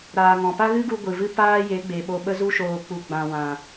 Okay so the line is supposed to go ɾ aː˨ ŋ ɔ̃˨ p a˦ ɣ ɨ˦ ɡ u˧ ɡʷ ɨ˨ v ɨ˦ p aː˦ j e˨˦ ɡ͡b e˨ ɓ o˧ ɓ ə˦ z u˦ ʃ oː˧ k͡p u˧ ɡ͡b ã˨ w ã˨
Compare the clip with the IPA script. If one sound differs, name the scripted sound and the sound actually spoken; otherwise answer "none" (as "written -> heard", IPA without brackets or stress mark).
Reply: none